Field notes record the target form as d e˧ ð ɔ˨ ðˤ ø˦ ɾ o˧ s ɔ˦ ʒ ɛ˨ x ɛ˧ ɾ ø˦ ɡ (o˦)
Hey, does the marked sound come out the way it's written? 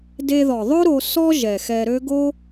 yes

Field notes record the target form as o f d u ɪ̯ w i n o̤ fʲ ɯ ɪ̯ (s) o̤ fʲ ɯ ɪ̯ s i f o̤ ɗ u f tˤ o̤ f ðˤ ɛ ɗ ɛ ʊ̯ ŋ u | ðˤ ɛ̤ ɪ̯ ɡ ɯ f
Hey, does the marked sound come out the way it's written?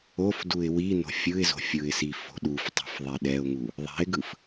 no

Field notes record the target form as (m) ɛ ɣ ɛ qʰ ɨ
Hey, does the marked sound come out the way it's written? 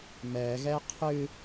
yes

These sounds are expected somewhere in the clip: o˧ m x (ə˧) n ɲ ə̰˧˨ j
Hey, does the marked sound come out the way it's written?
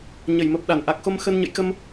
yes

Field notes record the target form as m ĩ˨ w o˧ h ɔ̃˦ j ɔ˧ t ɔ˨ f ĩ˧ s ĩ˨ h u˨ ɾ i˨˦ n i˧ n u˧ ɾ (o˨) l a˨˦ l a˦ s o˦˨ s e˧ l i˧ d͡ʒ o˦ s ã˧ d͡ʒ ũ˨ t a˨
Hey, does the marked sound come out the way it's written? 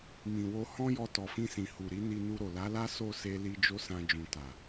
yes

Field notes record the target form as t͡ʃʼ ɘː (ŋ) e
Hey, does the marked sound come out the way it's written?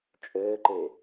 no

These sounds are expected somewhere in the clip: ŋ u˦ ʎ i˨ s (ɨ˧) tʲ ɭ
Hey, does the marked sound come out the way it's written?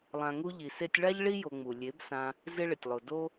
no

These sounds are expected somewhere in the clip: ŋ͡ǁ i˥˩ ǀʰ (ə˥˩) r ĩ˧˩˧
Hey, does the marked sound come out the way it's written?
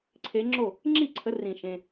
no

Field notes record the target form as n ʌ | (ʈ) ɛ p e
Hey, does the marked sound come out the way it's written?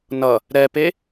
no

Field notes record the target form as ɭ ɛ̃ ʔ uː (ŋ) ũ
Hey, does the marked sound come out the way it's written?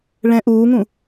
yes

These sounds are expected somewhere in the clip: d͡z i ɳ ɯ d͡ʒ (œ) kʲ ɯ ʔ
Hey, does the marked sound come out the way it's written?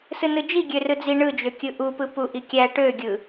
no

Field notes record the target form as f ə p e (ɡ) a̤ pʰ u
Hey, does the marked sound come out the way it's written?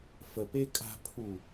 no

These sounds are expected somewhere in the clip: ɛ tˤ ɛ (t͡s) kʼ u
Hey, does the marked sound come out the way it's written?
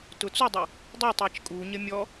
no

